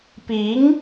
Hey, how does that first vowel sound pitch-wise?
rising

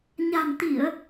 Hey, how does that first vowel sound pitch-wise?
low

